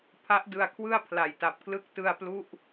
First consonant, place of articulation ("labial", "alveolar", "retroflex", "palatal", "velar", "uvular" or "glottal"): labial